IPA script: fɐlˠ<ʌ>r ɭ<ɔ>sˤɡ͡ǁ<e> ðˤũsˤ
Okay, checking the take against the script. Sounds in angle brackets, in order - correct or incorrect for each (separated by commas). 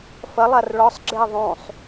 incorrect, correct, correct